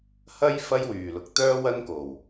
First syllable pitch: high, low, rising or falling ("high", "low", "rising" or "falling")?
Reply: high